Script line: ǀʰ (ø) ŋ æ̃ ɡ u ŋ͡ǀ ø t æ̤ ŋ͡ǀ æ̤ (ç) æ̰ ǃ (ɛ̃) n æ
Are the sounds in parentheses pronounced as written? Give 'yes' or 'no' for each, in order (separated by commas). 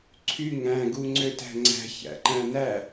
no, yes, no